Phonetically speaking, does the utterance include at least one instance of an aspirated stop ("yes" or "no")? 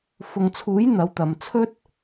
yes